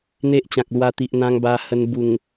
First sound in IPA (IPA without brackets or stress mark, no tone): n̪